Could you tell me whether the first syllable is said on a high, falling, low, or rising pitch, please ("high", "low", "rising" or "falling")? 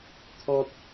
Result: high